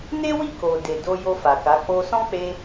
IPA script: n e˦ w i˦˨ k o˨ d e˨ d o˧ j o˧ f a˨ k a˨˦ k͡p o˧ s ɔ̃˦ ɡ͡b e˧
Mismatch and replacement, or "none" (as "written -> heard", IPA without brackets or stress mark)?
ɡ͡b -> k͡p